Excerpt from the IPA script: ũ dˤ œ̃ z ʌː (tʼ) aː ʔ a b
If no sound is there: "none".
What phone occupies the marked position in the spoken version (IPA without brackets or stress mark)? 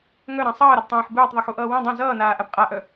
n